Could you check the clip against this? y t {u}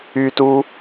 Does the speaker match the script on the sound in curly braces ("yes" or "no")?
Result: yes